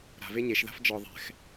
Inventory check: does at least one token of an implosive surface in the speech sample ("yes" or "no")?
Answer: no